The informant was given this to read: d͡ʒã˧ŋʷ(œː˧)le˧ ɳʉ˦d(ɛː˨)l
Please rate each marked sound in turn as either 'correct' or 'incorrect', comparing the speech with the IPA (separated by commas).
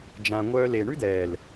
incorrect, correct